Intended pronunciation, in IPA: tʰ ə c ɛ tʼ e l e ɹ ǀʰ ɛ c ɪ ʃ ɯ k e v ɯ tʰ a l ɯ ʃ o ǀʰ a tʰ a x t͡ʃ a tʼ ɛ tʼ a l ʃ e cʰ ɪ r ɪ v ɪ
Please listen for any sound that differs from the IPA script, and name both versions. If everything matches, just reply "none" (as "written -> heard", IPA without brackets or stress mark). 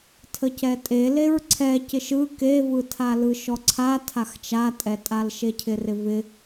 o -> ɔ